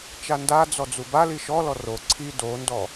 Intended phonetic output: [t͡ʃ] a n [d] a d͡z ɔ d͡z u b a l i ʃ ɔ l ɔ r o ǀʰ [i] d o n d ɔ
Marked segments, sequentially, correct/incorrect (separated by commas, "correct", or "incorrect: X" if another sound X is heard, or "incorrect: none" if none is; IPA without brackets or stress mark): correct, correct, correct